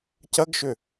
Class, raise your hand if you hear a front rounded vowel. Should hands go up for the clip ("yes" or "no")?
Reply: yes